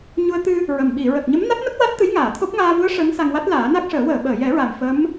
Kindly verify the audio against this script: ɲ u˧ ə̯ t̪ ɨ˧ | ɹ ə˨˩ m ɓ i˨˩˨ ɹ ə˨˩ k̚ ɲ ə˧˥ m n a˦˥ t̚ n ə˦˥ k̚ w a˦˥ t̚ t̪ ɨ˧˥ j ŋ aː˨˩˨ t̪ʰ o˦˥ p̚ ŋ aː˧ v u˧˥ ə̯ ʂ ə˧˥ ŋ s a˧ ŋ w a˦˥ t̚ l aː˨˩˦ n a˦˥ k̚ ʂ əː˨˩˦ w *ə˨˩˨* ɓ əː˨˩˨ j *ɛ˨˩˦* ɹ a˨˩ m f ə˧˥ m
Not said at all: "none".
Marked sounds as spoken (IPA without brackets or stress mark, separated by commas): əː˨˩˨, ɛ˨˩˦